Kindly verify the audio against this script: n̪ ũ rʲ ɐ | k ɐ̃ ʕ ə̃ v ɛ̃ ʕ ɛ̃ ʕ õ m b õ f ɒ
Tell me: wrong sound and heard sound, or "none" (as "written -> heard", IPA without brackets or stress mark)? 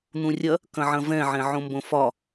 ə̃ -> ɐ̃